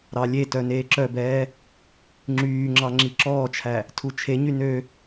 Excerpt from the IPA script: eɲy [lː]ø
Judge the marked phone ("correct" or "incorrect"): incorrect